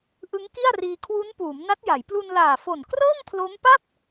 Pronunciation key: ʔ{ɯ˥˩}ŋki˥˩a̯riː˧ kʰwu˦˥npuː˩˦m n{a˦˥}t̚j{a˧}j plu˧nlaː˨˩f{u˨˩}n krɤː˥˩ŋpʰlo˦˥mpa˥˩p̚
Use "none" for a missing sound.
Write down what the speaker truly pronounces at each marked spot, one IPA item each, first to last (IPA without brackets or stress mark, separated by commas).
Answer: ɯ˦˥, a˦˥, a˩˦, o˨˩